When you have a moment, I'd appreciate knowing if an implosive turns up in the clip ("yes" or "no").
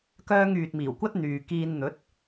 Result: no